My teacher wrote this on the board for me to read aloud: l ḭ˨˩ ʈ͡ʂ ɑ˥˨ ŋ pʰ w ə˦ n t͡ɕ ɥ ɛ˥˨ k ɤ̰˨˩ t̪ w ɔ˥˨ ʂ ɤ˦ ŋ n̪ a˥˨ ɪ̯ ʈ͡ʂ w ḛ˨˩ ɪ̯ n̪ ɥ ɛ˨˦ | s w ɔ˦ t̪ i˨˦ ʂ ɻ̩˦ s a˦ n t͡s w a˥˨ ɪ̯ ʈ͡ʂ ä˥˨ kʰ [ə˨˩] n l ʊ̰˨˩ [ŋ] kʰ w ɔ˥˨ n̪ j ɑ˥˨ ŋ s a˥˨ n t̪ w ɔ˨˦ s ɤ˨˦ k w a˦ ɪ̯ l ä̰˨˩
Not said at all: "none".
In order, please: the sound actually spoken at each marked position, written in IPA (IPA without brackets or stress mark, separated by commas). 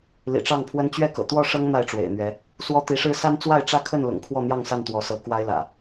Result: ə˥˨, ŋ